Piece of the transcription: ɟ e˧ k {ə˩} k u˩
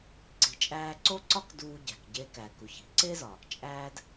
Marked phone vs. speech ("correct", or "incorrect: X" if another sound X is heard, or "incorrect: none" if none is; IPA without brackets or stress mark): incorrect: æ˩